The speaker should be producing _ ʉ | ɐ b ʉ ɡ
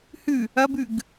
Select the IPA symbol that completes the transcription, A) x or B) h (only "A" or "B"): B